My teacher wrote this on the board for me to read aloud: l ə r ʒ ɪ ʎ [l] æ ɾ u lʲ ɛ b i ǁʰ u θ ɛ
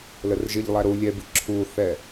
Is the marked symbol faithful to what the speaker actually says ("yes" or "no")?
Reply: no